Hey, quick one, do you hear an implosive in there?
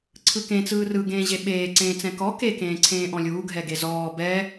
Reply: yes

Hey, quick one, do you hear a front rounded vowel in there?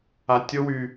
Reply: yes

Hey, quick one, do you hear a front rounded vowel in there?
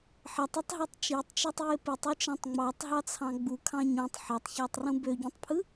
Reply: yes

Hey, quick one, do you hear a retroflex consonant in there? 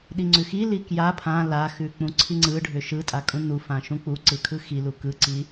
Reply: yes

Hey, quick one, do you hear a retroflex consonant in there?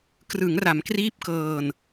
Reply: no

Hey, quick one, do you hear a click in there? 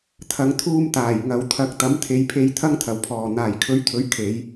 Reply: no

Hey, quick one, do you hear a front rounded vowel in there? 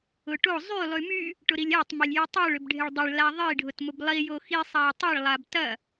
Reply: yes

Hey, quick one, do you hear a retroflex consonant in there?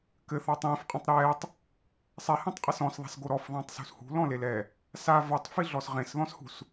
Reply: no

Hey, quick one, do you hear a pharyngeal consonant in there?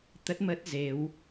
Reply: no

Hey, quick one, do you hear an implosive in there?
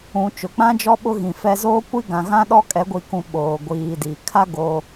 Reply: yes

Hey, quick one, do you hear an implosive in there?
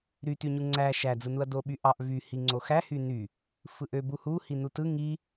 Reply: yes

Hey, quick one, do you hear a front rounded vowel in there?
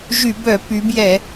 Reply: yes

